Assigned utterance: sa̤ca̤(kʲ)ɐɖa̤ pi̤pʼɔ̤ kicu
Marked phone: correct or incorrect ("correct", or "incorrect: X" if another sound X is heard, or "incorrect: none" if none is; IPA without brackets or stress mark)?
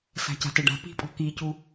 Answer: incorrect: t